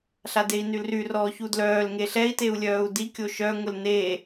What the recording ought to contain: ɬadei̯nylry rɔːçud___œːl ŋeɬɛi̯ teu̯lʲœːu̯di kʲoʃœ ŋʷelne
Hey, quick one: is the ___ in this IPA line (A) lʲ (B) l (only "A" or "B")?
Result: B